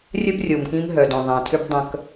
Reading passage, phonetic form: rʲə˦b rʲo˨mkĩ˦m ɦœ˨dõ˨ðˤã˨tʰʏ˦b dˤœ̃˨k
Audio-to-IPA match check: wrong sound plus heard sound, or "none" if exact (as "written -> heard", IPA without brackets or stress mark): none